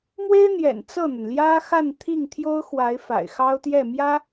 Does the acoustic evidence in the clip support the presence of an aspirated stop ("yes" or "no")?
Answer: yes